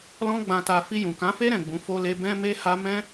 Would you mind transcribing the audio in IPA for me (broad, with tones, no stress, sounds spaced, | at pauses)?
l ɔ̃˦ ɡ͡b ã˧ t a˧ f i˧ j ũ˨ k ã˨˦ f e˦ ɾ ɛ̃˦˨ ɡ͡b ũ˨˦ f o˧ l e˧ b ɛ̃˦ m e˦ h a˦ m ɛ̃˦